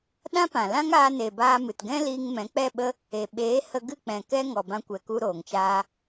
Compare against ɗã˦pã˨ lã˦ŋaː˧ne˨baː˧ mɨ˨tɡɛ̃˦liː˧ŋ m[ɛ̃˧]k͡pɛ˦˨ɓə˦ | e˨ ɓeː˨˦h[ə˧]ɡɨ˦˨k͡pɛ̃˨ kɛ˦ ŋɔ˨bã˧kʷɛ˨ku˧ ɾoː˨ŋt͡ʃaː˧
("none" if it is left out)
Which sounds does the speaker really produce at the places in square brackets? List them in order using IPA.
ɛ̃˨˦, ə˧

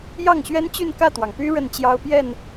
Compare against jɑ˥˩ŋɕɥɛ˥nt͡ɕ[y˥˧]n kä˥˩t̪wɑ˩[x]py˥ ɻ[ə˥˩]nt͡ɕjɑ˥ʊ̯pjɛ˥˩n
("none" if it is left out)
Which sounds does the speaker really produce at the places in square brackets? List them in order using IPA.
y˥˧, ŋ, ə˥˩

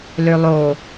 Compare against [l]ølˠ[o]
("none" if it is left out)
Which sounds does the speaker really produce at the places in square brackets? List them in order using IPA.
l, o

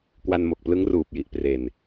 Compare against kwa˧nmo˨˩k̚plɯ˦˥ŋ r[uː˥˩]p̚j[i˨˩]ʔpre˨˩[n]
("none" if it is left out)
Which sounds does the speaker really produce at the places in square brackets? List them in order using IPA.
uː˨˩, i˨˩, n

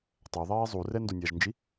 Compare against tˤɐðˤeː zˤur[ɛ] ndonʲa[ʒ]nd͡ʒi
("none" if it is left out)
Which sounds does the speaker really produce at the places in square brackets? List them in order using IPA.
ɛ, ʒ

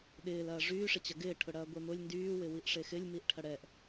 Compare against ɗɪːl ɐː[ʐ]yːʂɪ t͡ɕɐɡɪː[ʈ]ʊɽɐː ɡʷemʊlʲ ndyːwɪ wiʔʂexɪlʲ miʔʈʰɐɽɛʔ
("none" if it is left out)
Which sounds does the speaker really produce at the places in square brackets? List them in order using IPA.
ʐ, ʈʰ

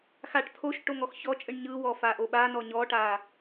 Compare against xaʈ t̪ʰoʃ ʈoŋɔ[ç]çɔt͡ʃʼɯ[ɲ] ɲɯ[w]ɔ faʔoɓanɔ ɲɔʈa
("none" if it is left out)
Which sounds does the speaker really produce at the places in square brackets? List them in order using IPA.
x, ɳ, w

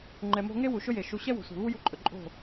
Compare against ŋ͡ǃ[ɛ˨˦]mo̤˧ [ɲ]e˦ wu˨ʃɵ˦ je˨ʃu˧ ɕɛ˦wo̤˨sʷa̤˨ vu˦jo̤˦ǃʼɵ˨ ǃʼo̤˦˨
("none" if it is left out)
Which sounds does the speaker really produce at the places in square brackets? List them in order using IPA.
ɛ˨, ŋ

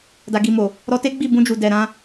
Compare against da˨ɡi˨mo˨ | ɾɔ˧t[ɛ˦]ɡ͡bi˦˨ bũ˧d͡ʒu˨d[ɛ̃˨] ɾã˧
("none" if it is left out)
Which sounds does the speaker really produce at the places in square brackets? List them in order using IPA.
e˦, ɛ˨

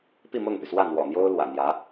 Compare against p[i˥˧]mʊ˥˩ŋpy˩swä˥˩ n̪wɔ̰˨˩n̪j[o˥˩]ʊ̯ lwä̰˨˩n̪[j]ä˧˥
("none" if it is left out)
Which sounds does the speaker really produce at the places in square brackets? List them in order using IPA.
i˥˧, o˥, j

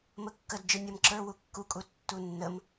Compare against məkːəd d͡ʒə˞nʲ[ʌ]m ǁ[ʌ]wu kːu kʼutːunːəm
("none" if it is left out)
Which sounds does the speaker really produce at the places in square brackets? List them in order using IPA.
ʌ, ə˞

